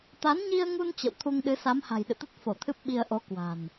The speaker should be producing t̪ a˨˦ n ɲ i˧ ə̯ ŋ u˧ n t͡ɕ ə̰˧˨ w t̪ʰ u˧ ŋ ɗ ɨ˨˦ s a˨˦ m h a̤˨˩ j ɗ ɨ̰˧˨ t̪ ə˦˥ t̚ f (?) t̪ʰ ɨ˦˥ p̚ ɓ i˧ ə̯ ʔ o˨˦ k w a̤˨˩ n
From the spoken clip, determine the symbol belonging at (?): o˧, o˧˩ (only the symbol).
o˧˩